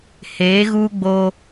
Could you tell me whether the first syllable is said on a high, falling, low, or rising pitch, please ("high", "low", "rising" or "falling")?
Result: rising